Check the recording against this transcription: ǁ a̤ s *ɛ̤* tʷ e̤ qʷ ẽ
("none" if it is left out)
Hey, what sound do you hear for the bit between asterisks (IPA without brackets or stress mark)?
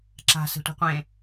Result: ɛ̤